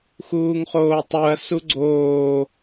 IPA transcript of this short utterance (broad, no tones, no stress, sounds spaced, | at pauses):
x uː ŋ χ oː tˤ u ɐ̯ s u ɡ͡ǀ oː